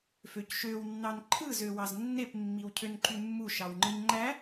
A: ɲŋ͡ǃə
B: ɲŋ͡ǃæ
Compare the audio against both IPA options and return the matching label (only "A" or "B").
B